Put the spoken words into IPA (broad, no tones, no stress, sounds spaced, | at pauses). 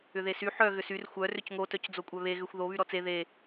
ʏ ð e s y ħ œ ɣ ʏ s y r xʷ œ r ʏ c ŋ o t œ c d͡z o kʷʼ œ β e ɣ ʏ xʷ ð o β y ɾ ɔ t͡s e ð e